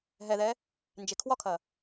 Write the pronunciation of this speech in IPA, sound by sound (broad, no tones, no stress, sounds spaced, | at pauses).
ɦ ɛ ð ɛ | n d͡ʒ e kʰ w ɒ kʰ ɐ